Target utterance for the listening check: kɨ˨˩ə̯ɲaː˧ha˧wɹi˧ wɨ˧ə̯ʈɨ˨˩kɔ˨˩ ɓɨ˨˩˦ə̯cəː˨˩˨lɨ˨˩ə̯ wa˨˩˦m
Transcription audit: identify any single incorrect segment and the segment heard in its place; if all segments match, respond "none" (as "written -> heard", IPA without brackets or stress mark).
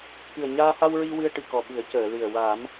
none